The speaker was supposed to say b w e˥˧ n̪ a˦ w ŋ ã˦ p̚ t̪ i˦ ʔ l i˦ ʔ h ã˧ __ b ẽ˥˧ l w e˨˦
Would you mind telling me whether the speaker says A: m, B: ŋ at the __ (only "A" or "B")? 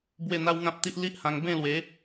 B